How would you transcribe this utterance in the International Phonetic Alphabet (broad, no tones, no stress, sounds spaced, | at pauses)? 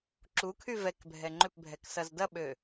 ǁ u kʰ y v ɛ k bʱ ɛ ŋ͡ǃ ʏ p bʱ ɛ k s ɐ z d ɐ ɓ ø